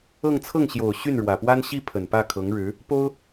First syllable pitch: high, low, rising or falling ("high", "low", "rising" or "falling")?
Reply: falling